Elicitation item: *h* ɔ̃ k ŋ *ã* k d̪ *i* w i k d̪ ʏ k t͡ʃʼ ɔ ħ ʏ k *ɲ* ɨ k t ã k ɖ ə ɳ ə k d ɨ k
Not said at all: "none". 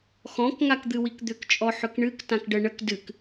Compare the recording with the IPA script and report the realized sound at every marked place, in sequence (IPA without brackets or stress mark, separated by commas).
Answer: x, a, ɨ, ɳ